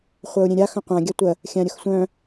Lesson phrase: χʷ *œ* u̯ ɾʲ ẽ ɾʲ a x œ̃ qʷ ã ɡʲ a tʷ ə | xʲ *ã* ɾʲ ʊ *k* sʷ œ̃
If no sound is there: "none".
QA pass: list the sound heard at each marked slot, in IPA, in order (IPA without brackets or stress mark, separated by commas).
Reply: œ, ã, x